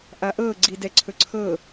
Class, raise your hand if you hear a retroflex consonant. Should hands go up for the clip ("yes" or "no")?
no